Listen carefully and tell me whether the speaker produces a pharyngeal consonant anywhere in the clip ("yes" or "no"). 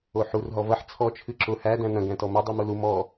yes